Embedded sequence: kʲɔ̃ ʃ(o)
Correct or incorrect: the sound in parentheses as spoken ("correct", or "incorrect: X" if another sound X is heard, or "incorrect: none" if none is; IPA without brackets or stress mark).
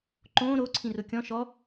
incorrect: ɔ